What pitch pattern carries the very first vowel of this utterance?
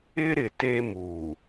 high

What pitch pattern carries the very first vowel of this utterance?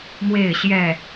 falling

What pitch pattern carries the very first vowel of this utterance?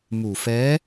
low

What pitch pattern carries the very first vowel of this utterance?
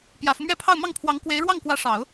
low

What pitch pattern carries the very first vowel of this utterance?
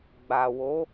low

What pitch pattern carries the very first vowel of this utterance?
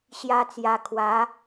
high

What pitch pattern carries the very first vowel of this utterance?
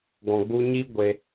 low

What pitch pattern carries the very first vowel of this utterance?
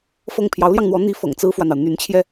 falling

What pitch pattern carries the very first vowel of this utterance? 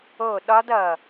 falling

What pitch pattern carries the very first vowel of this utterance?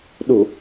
low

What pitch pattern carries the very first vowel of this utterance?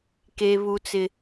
high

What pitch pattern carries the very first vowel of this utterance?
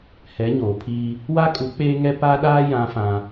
rising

